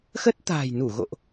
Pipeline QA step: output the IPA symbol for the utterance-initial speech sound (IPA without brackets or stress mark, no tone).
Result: x